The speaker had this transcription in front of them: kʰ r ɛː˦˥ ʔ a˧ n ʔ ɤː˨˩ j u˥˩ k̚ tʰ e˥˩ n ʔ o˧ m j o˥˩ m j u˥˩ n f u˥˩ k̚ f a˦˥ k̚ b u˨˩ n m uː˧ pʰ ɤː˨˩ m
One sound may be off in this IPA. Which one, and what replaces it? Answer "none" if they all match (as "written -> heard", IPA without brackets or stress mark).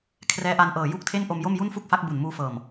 pʰ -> f